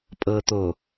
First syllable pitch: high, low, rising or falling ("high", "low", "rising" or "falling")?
low